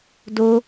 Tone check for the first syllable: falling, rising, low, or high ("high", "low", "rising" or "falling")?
high